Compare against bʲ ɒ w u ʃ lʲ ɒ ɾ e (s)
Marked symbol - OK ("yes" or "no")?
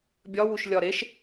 no